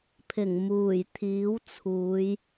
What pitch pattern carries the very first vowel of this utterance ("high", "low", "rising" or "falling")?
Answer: low